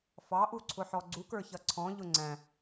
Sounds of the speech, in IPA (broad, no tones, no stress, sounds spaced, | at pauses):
f ɑ ʔ u ǀʰ ʊ ħ ɔ ɡ͡ǀ u k ə˞ ç ʌ ǀʰ ɔ̃ ʎ ʊ ŋ͡ǀ æ̃